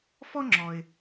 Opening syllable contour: high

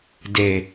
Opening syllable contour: low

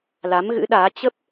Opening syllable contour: rising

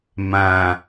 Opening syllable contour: low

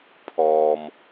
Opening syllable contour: low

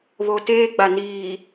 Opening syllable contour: low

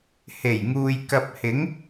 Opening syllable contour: low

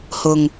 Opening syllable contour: low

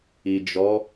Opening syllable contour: low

